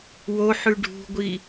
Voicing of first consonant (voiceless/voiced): voiced